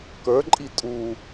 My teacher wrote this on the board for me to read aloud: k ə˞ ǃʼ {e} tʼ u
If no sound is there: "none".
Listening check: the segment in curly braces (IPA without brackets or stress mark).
i